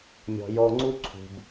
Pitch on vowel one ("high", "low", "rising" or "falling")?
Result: low